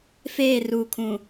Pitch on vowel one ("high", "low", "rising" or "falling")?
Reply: falling